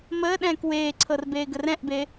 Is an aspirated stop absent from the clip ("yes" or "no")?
no